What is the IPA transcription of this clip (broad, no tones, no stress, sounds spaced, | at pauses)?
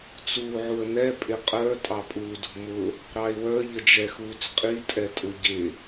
t͡s uː ʕ u ə̯ n ɛ pʼ ɪ qʼ ə˞ tʼ ɑ pʼ uː d ṳ m ʊ | ɾ ɑ ɪ̯ w ə˞ ʎ ə d͡ʒ ɛ x uː t͡s qʼ i tʼ ɛ tʼ ʊ ɟ ɪ